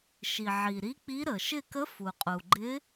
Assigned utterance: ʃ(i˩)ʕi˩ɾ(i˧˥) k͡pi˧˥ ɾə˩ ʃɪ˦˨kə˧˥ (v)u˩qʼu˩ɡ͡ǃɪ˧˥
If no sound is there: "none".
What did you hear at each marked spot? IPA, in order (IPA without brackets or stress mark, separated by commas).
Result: i˩, i˧˥, f